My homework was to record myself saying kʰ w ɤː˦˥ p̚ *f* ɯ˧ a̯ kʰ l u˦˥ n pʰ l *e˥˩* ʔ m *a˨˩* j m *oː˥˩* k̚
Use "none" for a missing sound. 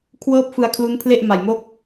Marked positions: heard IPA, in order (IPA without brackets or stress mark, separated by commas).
f, e˥˩, a˨˩, o˥˩